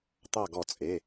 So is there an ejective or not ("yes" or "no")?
yes